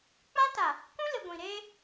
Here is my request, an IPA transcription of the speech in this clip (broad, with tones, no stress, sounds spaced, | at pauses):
k͡p ã˦ t a˨ | k ũ˦ l ɪ˨ ɡʷ ĩ˨ ɾ eː˦